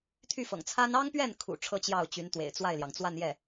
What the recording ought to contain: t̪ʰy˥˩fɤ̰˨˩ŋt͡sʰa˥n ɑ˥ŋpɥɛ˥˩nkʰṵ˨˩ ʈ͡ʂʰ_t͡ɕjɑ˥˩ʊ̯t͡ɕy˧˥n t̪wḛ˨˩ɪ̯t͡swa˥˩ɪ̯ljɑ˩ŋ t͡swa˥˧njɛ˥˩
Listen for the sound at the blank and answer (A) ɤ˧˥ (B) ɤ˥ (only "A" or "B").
B